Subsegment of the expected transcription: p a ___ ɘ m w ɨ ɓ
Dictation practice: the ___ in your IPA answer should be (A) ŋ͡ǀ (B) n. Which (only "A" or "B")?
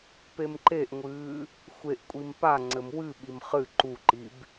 A